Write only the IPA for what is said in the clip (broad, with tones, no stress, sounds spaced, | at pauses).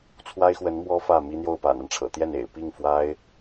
t͡sʰ w a˥ ɪ̯ x w ə˧˥ n m w ɔ˥ f ä˥˩ m i˥ n̪ j o˥˩ ʊ̯ p a̰˨˩ n a˦ n ʈ͡ʂʰ ɤ̰˨˩ t̪ j ɛ˥˩ n ḛ˨˩ ɪ̯ p i˥˩ ŋ f w a˥ ɪ̯